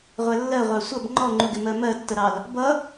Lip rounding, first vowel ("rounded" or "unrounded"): unrounded